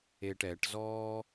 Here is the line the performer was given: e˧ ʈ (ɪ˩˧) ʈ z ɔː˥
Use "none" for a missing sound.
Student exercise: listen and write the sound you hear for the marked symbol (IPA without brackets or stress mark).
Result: ɛ˩˧